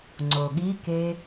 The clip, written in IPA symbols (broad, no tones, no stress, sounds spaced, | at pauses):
ŋ͡ǀ o ɠ i k e